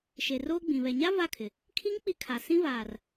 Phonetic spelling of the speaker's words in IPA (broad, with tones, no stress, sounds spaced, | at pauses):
ʃ e˨ r oː˦ ɡ͡b ĩ˨ β ɛ˨ ɲ a˦ v a˦˨ kʰ ɪ˨ | kʰ i˦ ŋ k͡p i˦ kʰ a˨ s ĩ˦ v aː˨ r